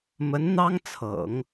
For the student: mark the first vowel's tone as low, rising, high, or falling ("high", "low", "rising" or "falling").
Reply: rising